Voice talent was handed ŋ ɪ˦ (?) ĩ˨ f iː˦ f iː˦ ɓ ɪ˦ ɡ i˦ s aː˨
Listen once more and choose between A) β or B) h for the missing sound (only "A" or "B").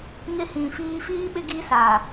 B